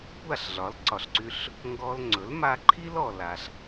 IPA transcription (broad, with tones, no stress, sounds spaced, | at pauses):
kʷ a˥˩ ɬ ɮ ɒ˩˥ l ǀ ɒ˩ ɬ ǀ y˧ ɬ | ŋ ɡ ɔ˧ l ŋ͡ǀ ɵ˩˥ l m a˧ ǃʰ i˥ l ɔ˩ l a˩ ɬ